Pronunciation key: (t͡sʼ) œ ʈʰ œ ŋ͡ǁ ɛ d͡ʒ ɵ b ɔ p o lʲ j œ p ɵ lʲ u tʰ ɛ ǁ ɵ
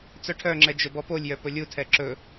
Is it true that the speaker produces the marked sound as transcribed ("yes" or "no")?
no